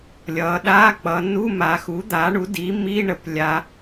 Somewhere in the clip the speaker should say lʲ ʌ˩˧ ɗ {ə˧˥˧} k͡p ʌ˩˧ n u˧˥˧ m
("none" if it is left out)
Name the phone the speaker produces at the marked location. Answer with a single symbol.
a˧˥˧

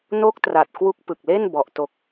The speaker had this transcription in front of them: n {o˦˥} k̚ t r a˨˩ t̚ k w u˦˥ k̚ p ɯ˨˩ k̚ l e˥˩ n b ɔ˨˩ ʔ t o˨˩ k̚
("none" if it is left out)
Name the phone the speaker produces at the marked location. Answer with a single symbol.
o˦˥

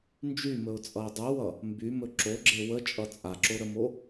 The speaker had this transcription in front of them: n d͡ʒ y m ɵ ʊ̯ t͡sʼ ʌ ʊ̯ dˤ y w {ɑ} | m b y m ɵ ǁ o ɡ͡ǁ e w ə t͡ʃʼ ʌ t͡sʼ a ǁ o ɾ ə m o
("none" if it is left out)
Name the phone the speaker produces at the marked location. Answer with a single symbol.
ʌ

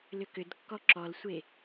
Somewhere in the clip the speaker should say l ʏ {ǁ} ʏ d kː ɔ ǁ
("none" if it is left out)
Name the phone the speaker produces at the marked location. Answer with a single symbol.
k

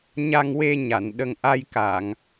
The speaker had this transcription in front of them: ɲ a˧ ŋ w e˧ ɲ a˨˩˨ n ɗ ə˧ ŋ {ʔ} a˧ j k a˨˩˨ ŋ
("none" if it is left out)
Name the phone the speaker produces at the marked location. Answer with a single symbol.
ʔ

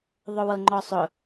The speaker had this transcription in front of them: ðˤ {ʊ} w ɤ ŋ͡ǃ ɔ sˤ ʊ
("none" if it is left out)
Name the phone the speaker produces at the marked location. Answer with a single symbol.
ʊ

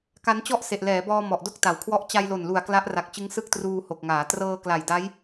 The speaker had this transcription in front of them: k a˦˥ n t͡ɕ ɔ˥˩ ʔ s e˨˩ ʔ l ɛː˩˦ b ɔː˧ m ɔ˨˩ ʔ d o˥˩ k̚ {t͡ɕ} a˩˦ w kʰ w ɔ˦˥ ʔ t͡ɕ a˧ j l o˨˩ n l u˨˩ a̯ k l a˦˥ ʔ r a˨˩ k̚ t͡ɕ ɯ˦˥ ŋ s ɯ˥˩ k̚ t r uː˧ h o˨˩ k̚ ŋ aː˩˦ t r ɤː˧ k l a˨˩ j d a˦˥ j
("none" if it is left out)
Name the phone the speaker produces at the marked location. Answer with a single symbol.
t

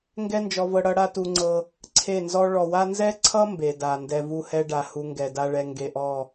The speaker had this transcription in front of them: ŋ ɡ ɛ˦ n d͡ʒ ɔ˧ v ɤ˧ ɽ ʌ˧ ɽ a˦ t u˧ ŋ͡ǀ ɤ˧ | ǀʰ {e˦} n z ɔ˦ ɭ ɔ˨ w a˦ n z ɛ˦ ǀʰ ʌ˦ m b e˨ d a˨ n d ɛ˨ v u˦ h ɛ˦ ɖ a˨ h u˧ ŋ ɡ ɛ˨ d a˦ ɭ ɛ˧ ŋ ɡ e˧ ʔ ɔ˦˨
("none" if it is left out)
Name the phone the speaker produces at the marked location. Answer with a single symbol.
e˦˨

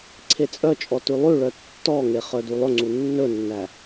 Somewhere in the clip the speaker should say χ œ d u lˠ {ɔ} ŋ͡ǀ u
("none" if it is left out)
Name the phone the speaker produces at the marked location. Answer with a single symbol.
ɵ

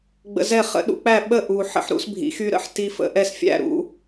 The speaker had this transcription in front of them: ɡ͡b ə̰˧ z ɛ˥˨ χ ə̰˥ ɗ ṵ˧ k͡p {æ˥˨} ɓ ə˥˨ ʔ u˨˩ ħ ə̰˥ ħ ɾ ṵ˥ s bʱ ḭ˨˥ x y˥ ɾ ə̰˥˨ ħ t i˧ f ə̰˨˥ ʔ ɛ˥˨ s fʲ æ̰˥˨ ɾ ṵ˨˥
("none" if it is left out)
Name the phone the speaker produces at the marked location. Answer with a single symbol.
æ˥˨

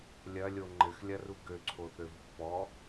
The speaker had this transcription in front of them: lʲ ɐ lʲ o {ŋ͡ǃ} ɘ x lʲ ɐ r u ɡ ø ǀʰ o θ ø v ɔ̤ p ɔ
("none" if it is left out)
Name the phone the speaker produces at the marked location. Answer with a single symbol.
ŋ͡ǃ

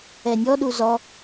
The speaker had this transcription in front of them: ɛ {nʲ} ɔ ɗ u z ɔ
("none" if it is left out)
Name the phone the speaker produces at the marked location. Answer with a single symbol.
nʲ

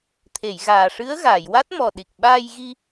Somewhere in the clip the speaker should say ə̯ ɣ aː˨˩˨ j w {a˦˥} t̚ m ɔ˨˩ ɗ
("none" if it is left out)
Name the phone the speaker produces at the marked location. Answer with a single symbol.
a˦˥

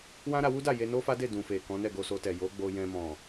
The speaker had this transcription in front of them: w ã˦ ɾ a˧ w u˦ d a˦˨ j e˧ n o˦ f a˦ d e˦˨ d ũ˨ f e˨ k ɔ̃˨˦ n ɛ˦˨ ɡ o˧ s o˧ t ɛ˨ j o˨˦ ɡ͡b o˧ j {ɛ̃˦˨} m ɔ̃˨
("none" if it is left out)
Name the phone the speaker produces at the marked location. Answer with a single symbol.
ɛ̃˧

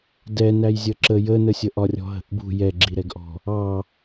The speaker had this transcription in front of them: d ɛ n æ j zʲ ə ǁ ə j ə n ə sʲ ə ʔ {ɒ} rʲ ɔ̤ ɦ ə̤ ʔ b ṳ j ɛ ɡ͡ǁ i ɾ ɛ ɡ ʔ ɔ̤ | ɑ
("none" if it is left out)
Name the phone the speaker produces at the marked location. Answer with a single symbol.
ɒ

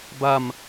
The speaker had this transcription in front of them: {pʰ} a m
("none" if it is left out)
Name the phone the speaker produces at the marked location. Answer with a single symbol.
b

